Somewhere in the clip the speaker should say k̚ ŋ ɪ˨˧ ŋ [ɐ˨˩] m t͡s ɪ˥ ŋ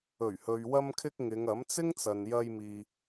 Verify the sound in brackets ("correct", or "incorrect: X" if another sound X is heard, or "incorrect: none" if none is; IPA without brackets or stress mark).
incorrect: ɐ˨˥